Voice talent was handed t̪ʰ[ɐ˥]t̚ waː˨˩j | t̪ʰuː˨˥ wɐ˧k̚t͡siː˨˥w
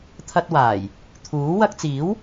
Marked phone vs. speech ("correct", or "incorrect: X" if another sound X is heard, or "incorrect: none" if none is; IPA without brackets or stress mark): incorrect: ɐ˧